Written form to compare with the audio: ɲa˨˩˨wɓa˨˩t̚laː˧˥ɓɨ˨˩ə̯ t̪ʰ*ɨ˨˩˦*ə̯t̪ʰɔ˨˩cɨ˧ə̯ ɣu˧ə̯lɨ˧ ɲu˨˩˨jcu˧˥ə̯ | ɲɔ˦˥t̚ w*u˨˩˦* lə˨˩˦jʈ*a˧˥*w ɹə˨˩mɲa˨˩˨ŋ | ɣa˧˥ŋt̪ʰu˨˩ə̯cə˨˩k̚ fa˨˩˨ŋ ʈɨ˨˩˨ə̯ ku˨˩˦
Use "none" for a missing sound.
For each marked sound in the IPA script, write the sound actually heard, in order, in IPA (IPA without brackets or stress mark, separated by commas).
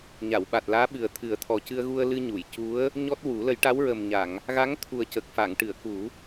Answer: ɨ˨˩˦, u˨˩˦, a˧˥